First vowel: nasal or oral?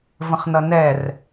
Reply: nasal